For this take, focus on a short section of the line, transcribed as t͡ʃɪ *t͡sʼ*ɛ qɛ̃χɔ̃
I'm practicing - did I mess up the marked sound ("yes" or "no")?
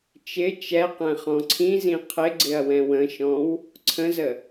yes